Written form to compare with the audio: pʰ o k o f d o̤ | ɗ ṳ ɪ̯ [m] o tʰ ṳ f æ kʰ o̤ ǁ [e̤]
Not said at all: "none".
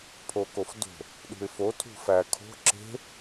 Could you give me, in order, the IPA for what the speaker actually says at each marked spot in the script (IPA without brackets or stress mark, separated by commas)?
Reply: f, e̤